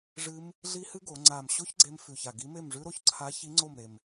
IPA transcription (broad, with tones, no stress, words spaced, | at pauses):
ʐɨ˦˥m | ɮi˦˥hɨ˦˥ ɡo˩˧ ŋ͡ǀa˨˩mɕo˦˥ç ɡ͡ǀe˦˥m fʉ˨˩ça˨˩ɡi˨˥ me˥˩mʐʉ˦˥ɾo˧ç ǀʰa˨˥çi˨˥ ŋ͡ǀo˥˩mɾe˨˩m